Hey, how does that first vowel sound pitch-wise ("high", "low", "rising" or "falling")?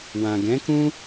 low